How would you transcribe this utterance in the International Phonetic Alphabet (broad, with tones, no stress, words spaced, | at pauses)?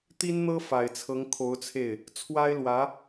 t̪i˥nn̪ɤ˥ fa˨˩ɪ̯t͡sʰɤ˧˥ŋkʰo˧˥ʊ̯t͡sʰe˥˩ɪ̯ | t͡sʰwa˥ɪ̯lwä˧˥